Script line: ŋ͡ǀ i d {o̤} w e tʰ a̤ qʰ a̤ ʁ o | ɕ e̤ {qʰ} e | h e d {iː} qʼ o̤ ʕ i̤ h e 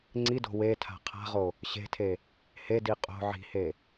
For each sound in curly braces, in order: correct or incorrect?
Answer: correct, incorrect, incorrect

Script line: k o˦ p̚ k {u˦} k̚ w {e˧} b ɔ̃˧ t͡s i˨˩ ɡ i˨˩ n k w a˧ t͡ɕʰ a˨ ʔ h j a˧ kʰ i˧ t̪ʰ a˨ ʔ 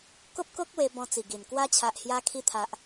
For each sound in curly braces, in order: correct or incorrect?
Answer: incorrect, correct

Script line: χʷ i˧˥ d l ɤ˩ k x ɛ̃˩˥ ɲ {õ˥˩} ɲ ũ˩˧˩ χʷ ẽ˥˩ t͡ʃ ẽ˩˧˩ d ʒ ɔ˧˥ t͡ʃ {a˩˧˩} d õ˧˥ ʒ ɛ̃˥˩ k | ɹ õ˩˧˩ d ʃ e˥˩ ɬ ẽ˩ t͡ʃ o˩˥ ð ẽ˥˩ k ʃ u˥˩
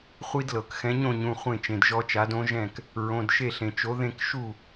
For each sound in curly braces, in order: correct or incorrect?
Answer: correct, incorrect

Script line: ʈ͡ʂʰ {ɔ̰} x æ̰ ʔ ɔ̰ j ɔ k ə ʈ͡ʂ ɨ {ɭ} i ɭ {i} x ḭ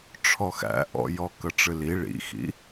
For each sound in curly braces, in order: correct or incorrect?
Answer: incorrect, incorrect, incorrect

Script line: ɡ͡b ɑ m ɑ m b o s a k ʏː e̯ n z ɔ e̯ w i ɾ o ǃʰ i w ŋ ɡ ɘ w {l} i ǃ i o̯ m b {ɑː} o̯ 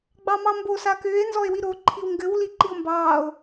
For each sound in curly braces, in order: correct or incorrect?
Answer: correct, correct

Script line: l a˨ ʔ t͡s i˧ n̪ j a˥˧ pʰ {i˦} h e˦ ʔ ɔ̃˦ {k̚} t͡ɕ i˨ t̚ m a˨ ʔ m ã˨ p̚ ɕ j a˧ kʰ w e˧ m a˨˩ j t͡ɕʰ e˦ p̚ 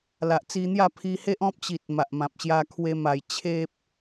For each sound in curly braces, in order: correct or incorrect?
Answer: incorrect, incorrect

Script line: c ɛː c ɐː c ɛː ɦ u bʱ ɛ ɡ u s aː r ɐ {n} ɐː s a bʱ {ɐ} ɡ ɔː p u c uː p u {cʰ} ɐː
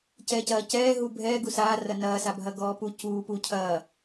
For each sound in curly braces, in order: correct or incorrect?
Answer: correct, correct, correct

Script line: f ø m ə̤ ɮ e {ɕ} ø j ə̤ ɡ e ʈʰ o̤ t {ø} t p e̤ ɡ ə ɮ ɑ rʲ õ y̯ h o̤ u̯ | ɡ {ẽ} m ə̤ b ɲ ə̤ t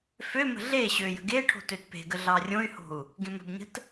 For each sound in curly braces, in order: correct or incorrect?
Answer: correct, correct, correct

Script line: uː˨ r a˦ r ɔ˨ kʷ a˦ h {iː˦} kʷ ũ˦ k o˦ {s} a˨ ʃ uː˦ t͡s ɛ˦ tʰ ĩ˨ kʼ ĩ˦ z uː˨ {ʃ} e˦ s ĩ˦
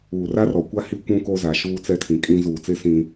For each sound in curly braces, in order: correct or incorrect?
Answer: incorrect, incorrect, incorrect

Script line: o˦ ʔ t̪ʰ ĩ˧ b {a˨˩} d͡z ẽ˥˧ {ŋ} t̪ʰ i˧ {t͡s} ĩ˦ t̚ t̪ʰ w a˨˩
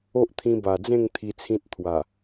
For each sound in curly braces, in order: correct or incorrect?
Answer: correct, correct, incorrect

